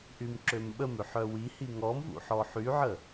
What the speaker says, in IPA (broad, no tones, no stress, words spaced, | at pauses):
ʔymǁømɓəmøħ œwihi ŋɔmvṵ ħɔħyʕə